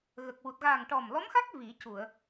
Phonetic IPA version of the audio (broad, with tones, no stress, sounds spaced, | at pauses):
ɣ ə˨˩ k̚ w u˨˩ t̚ ɣ aː˨˩ ŋ ʈ ɔ˨˩ m l ɔ˧˥ m x a˦˥ k̚ v i˨˩˦ c u˨˩˨ ə̯